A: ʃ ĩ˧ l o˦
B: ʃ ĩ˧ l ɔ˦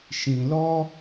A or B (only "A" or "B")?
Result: B